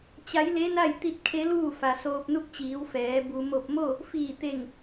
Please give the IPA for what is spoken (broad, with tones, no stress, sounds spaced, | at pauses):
t͡ɕ a˧˥ j l e˧˥ n a˥˨ j t̪ i˧˥ t̚ kʰ e˧˥ l uː˥˨ f a˩ s oː˧ p̚ n u˥˨ k̚ t͡ɕ iː˩˧ w f ɛː˩˧ b u˩ m o˧˩ p̚ m o˥˨ | f iː˧˩ t̪ e˧˩ ŋ